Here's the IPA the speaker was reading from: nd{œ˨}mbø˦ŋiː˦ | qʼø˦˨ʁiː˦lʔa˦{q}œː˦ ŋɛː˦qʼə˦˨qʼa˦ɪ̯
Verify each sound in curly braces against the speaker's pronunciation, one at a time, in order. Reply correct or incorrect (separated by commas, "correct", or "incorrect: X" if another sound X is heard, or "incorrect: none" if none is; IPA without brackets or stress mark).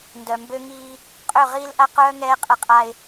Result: correct, correct